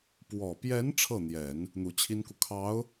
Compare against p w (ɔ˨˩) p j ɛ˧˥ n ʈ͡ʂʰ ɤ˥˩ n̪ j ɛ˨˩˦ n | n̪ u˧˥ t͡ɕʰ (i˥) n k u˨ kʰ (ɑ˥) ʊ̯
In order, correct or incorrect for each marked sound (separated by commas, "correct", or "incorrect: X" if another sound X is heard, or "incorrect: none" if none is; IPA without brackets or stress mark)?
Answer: correct, correct, incorrect: ɑ˧˥